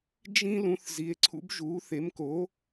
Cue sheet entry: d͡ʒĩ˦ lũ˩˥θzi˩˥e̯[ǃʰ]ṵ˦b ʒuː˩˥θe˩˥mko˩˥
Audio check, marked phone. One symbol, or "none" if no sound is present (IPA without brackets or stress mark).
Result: ǀʰ